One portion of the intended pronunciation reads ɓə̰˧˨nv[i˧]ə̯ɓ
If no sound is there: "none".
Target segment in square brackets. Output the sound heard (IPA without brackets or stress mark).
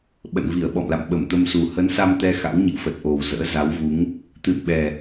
i˧˩